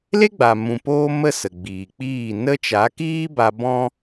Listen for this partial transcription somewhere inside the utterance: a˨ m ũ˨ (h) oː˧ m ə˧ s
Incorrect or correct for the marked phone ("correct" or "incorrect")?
incorrect